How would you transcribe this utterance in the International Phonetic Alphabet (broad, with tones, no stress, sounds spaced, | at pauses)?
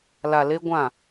l a˨ l e˦ ɡʷ ã˦˨